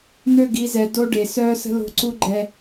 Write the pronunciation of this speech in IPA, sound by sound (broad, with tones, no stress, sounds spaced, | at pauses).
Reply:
n̪ ø˦˨ ɡ i˨˦ z ɛ˨ d o˦ ɖ e˨ s œː˦ s ə̤˦ l o̤˦˨ ǀ u˦ ɡ͡ǃ ɛ˦